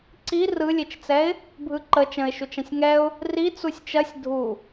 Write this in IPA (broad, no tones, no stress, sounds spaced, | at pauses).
ǀ i r ɯ lʲ e t͡ʃ t͡s ɛ ɪ̯ | bʱ ɯ ǃ ə t͡ʃ ə̃ ɪ̯ ʃ u t͡ʃ ɐ̃ sʲ ŋ ɛ ʊ̯ | r i t͡s u sʲ t͡ʃ ɐ sʲ dʱ u